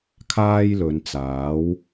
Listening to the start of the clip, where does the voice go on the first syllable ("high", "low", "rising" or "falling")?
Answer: high